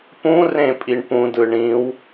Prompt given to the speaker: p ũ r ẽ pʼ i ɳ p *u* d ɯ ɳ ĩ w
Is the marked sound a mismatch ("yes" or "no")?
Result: yes